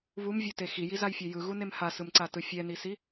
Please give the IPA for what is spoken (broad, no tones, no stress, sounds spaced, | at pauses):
β u m vʲ u t e x i j i z a j fʲ e j ɯ ɣ u n e m h a s ɯ m ǀ a t ɯ fʲ ɛ n i s i